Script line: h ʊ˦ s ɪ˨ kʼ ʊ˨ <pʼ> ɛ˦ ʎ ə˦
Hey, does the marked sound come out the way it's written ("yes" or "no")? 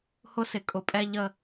yes